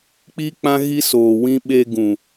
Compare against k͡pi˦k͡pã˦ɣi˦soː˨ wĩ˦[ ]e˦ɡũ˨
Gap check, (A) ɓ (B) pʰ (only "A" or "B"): A